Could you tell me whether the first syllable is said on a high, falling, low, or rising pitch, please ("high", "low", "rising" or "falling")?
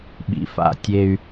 low